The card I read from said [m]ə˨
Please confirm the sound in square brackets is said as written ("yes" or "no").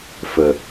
no